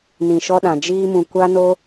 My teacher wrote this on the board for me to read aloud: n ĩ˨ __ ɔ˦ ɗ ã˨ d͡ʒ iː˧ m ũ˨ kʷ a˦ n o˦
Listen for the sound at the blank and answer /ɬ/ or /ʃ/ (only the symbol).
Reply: ʃ